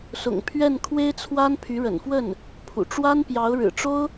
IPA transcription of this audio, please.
s ʊ̰˨˩ ŋ pʰ ɥ ɛ˥˩ n kʰ w e˥ ɪ̯ t͡sʰ w a˥ n pʰ y˧˥ ɻ ə̰˨˩ n f w ə˥˩ n | pʰ ṵ˨˩ ʈ͡ʂ w a˥ n p j ɑ˧˥ ʊ̯ ɻ ɻ̩˨˩ ʈ͡ʂ o˥ ʊ̯

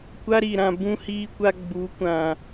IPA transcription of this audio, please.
kʷ a˦ ɾ i˨ ɾ ã˨ b ũ˦ h iː˦ kʷ a˦ ɡ͡b u˨˦ kʷ ã˨

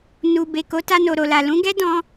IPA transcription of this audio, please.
n u˨ b e˨ k o˨˦ t a˧ n o˨ ɾ o˨ l a˨ l ũ˨˦ ɡ ɛ˦ d ɔ̃˧

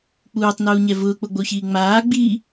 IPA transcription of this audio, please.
k͡p uː tˤ n uː ɲ ɛ v ʊː k͡p o ɡ͡b o ç iː ŋ͡m aː ɡ͡b i

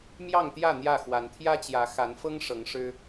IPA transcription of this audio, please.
m j ɑ˥˨ ŋ t̪ j ä˥˨ n̪ j ä˥˨ x w a˨˦ n t̪ʰ j ä˦ t͡ɕ j ä˨˦ x a˨˦ n f ɤ˦ ŋ ʂ ɤ˨˦ ŋ ʂ ɻ̩˦

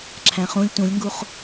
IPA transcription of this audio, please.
ǁʰ æ̃ χ ũ lʲ t ũ lʲ ŋ ɡ u χ

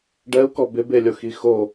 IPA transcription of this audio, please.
ɖ ɛ u̯ k ɔ b ɪ b e lʲ o x i x o

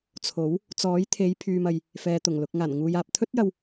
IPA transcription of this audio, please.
t͡sʰ o˨˥ w | t͡s ɔː˨˥ j t̪ʰ e˨˧ j pʰ yː˧ m ɐ˧ j | f ɛː˨ t̪ ʊ˨˩ ŋ l ʊ˨ k̚ ŋ aː˨˩ n ŋ uː˨ j aː˨ p̚ t̪ʰ ɵ˥ t̚ j ɐ˧ w

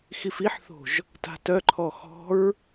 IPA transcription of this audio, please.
x i f i ħ θ o̤ ʒ | t a̤ t œ ǃʰ ɔ x ɔ̤ ɹ

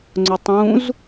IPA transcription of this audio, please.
ŋ͡ǀ ʊ tˤ ũ z

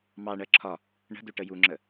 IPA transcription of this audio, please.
m ɑ ɳ ɜ ǁʰ ɒ | ɳ ə̤ d u ʈ ə j u ŋ͡ǁ ə

